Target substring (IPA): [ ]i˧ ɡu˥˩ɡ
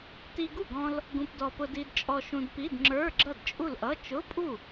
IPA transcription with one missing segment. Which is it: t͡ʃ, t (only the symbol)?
t